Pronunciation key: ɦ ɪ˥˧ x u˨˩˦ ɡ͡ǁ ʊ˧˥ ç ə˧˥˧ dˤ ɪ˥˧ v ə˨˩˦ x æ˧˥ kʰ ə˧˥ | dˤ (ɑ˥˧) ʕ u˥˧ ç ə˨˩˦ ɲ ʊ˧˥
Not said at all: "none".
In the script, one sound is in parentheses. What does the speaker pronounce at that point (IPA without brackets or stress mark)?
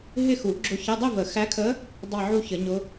ɑ˥˧